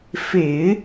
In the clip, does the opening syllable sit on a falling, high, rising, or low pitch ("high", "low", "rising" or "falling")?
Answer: low